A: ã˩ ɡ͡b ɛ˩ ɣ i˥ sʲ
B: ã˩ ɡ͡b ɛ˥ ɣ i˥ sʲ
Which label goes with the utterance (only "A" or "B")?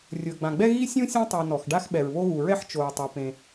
B